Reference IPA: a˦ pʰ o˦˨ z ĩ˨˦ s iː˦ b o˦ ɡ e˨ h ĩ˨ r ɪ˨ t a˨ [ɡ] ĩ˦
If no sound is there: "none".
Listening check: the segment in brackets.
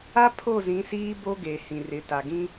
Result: ɡ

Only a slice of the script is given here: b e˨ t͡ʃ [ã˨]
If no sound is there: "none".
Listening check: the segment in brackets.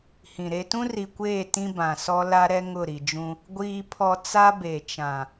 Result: ã˨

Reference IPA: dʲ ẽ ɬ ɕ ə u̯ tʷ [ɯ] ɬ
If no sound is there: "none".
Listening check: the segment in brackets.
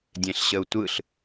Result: ɯ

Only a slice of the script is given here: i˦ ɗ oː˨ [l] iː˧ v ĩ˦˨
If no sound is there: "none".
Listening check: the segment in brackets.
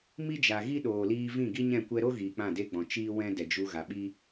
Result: l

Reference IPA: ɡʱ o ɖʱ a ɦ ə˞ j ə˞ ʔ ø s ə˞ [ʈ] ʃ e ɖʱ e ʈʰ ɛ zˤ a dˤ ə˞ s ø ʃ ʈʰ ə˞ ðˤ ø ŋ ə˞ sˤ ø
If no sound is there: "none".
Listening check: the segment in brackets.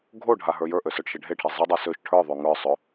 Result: ʈ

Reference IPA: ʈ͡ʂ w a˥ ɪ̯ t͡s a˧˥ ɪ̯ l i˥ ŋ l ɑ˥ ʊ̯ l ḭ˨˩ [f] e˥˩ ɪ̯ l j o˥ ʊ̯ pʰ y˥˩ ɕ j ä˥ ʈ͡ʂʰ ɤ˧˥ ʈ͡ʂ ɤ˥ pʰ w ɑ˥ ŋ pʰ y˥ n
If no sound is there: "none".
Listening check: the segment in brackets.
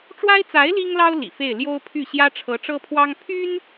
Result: f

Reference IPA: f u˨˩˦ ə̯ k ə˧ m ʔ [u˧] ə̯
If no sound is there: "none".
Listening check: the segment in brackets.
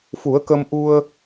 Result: u˧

